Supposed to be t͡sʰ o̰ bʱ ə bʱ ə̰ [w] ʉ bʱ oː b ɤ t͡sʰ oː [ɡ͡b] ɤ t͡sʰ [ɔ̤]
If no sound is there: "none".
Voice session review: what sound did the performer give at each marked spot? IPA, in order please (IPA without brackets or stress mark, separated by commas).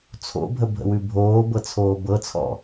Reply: w, b, ɔ̰